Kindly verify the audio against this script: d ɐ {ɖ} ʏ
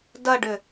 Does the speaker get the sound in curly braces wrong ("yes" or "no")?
no